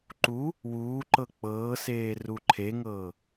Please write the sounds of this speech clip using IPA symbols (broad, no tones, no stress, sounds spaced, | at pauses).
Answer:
ǃ u | w uː ǃ ɤ k͡p ɤː s eː r u ǃʰ e ŋ ɤː